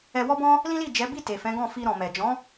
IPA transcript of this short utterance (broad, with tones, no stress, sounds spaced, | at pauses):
ɛ˧ w ɔ˦ b ɔ̃˦ | l ĩ˦ l i˦˨ d͡ʒ ɛ˨˦ b i˦˨ t e˨ f ɛ̃˨˦ ɡ ɔ̃˦˨ f i˧ ɾ ɔ̃˨ m ɛ˨ d͡ʒ ɔ̃˨˦